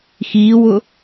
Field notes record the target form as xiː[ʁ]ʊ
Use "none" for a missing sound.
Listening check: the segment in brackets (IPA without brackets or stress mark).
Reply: w